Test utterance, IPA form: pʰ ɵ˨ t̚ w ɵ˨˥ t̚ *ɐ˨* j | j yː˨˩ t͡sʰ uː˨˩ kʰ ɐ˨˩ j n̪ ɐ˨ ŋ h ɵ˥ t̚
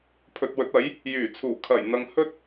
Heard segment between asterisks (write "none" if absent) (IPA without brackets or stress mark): ɐ˨˥